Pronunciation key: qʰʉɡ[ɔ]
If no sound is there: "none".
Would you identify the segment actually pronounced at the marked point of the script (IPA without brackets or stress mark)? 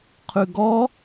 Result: ɔ